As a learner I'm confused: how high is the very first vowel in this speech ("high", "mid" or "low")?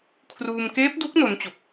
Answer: high